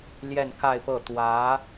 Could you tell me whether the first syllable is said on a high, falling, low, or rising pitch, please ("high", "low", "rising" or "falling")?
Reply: falling